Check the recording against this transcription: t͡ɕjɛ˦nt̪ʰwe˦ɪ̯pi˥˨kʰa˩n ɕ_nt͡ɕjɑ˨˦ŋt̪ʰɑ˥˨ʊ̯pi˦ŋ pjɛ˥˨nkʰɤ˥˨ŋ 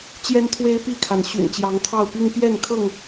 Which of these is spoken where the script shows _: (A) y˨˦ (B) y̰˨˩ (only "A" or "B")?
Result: B